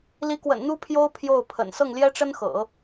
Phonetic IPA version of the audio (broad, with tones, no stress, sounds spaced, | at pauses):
l i˧˥ k w ə̰˨˩ n n̪ u˥ pʰ j o˥ ʊ̯ pʰ j o˥˩ ʊ̯ pʰ ə̰˨˩ n s ɤ˥˩ ŋ l j ɛ˥ ʈ͡ʂ ə˥ n x ɤ̰˨˩˦